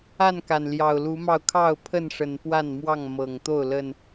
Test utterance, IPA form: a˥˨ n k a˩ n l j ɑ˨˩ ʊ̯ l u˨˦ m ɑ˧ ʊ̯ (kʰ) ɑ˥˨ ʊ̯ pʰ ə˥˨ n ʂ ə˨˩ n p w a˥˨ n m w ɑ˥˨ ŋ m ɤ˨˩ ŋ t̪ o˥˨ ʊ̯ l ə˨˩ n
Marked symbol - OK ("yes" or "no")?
yes